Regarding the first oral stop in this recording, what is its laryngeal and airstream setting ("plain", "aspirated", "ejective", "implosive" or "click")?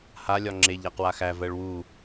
click